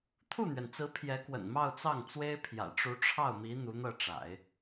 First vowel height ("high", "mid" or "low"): high